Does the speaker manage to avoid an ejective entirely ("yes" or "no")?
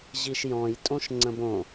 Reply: no